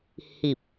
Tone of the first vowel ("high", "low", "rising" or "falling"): low